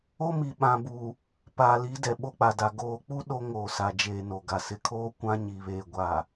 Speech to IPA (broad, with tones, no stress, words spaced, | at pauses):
o˦mi˨ɓã˨bu˨ | paː˨li˨˦ dɛ˨ɓo˦k͡pa˨da˨ ɡoː˨k͡pu˦ ɗo˦ŋoː˨sa˨d͡ʒeː˨ no˨ɡa˨ sɪ˨kʰoː˦ kʷã˦ɲi˨βeː˨ ɡʷa˨